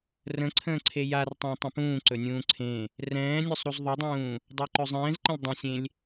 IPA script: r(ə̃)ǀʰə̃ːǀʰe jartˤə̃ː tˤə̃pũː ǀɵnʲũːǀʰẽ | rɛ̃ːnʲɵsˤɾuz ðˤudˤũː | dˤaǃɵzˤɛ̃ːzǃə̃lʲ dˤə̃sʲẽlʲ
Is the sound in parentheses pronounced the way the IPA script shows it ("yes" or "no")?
yes